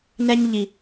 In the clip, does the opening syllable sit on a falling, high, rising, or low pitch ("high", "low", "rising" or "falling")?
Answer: high